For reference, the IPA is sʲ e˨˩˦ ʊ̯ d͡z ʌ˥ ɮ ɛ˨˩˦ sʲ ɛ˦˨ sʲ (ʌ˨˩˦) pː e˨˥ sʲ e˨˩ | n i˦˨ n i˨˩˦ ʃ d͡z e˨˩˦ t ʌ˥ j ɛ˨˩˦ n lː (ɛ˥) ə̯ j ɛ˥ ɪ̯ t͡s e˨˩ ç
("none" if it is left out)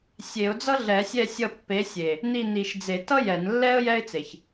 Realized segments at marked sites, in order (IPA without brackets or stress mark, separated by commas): ʌ˦˨, ɛ˥